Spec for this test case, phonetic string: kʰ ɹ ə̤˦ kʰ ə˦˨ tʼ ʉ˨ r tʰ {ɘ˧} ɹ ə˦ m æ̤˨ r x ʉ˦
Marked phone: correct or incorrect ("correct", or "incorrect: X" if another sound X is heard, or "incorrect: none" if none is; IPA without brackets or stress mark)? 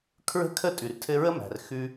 correct